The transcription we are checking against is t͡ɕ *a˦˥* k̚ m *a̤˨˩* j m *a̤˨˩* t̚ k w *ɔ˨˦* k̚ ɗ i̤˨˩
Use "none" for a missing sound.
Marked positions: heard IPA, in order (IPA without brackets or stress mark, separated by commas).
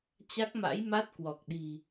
a˦˥, a̰˧˥, a˦˥, ɔ˨˩